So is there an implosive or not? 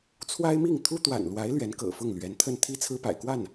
no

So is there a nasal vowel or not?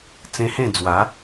yes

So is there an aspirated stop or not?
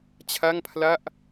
yes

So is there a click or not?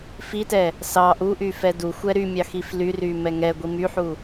no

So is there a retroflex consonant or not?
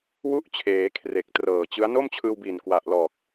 no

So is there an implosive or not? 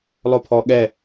yes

